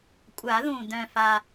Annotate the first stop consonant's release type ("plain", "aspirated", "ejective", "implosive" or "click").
ejective